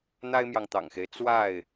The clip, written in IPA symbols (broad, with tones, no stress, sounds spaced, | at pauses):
n̪ a˦ ɪ̯ m j ɑ˨ ŋ t̪ ɑ̰˨˩ ŋ x e˦ ɪ̯ t͡s w a˥˨ ɪ̯